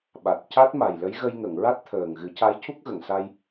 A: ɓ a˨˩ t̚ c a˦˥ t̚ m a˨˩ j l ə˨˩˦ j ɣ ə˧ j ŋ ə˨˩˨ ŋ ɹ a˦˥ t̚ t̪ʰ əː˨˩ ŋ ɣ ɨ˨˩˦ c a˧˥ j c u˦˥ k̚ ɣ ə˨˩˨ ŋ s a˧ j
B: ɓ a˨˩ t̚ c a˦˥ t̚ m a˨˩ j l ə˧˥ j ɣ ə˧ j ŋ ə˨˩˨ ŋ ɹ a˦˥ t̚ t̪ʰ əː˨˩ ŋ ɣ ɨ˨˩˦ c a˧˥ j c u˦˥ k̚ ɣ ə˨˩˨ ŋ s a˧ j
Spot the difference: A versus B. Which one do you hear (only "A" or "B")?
B